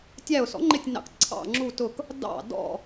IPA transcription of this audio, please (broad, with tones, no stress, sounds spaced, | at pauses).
tʲ æ˧˩ ʊ̯ s ɔ̰˩˥ ŋ͡ǃ ɪ˧˩ tʲ n ɑ̰˩˥ k ǀʰ ɑ̰˧˩ ŋ͡ǁ u˧˩ t ʊ˧˩ k | d ɑ̰˧˩ d ɔ̰˧˩